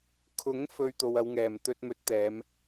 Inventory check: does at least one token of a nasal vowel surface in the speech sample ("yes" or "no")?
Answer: no